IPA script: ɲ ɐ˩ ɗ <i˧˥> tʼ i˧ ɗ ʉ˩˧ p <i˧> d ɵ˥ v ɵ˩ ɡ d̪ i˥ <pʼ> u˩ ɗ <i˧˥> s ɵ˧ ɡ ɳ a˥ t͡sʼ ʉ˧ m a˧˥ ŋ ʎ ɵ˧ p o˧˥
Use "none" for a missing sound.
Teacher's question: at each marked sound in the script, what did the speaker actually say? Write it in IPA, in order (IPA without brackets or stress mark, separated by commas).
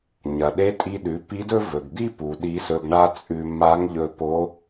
e˧˥, i˧˥, p, i˧˥